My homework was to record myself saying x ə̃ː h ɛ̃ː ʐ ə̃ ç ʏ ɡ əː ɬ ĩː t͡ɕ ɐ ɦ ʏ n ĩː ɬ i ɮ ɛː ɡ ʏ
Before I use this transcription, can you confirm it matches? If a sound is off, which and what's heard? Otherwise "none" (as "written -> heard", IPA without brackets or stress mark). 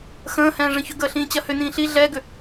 ɦ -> h